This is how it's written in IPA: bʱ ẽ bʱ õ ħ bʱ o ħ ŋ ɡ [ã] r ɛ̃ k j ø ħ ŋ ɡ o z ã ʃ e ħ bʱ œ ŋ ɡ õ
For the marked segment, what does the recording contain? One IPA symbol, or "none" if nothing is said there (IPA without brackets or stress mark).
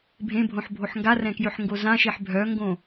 a